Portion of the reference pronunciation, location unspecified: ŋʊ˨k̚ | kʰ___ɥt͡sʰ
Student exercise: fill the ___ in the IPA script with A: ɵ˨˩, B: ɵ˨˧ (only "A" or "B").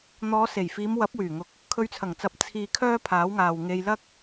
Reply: B